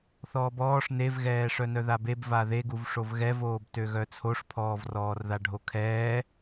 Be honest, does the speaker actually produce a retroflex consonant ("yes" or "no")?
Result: yes